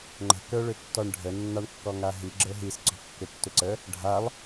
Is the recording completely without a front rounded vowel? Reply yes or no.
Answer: no